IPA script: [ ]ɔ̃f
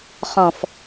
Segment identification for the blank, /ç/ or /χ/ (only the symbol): χ